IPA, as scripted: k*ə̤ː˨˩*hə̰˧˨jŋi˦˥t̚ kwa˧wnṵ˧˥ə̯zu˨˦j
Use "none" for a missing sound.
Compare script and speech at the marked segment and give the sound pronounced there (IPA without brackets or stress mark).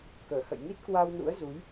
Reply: əː˧˩